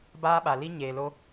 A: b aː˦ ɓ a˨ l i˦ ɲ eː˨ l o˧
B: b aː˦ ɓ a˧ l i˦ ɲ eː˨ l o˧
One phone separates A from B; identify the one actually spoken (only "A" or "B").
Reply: B